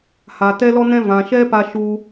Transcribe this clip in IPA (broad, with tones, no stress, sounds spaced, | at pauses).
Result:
h a˨ t ɛ˦ l ɔ˦ n ɛ̃˦ v ã˨ ʃ ɛ˦ p a˧ ʃ u˧